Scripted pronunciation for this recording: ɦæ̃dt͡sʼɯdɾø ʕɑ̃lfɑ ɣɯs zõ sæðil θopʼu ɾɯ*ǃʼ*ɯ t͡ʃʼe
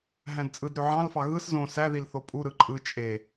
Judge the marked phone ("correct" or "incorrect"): correct